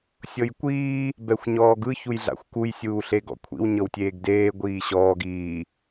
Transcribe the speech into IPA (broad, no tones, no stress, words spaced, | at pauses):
sʲɤjkʷiː | bɛxʷɲɔːɡɯ çujɮa̰xʷkuj sʲuːɬeɡɔ̰kʷʰḭw ɲɤwtʲeːɡdeː ɡʷiːɕɔːɡ iː